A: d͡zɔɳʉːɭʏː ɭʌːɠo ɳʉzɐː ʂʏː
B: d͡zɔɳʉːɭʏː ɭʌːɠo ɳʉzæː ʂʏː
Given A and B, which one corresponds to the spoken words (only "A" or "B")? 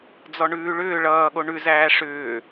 B